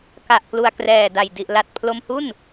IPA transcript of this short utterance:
k a˨˩ ʔ k l u˨˩ a̯ k r ɛː˨˩ d a˨˩ j d i˨˩ ʔ l a˨˩ t̚ pʰ l o˧ m h u˥˩ n

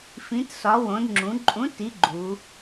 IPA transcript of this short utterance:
f ĩ˨˥ t s ɒ˨˥ w õ˩˧ d ŋ͡ǁ ũ˩˧ ǃʼ ũ˨˥ t i˨˥ ɡ͡ǃ u˩˧

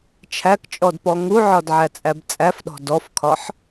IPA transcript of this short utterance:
t͡ʃʰ æ k t͡ʃʼ ɔ d p ɔ ŋ u ʕ ɒ d ʕ æ t͡sʼ æ b t͡sʼ æ f ɗ ɔ̤ d ɔ f kʰ ɒ ħ

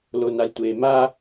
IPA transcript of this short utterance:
l o n a lʲ tʷ eː m a

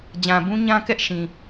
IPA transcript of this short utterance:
d͡ʑ ã˨ b ũ˦ ɲ ã˦ k ɛ˦ ʔ ʃ ĩ˨

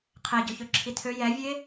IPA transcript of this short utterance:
qʰ e ɟ ø ç ø ǁʰ i tʰ ø j ɛ vʲ e

